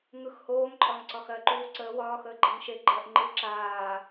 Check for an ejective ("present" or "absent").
present